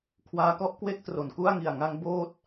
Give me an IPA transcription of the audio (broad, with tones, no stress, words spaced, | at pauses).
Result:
kʰwaː˦˥kɔ˥˩ʔkwe˥˩k̚ tro˩˦nku˥˩a̯ŋi˨˩a̯ ŋa˧ŋ boː˥˩t̚